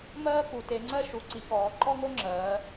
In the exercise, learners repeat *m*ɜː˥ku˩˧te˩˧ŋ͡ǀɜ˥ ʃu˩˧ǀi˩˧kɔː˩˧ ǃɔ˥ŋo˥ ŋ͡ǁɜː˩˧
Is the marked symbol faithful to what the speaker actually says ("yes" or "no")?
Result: yes